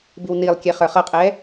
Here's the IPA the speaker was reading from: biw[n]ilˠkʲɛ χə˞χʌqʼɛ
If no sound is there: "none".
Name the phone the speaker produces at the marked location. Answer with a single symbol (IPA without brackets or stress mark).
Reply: n